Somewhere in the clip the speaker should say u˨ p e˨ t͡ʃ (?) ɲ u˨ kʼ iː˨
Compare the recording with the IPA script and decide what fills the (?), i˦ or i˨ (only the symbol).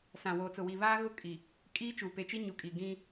i˦